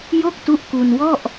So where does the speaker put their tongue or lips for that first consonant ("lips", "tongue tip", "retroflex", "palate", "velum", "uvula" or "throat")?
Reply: palate